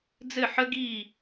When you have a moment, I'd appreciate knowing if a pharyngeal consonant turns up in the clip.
yes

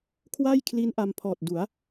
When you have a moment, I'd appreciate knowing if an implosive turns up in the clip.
no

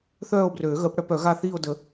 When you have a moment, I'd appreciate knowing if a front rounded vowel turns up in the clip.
yes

